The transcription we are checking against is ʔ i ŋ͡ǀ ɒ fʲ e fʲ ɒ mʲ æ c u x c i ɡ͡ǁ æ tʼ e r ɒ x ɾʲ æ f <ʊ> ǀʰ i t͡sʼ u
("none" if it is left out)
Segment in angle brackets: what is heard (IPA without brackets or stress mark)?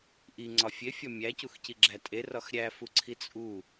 u